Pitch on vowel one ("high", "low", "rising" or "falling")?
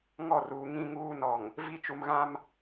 falling